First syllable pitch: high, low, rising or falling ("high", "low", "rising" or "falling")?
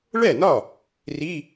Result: falling